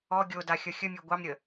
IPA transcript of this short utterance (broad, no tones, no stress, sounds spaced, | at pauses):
ɔ ɡʲ o d a xʲ ʌ xʲ ə mʲ ø ɡʷ ɑ m ɾʲ ə